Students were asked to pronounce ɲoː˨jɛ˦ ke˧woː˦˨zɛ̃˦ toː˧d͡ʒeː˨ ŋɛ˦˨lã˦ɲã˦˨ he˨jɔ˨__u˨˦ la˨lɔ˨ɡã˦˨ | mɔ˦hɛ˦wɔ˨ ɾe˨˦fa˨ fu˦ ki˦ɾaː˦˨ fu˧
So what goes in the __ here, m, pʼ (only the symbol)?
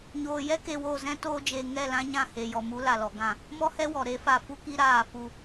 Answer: m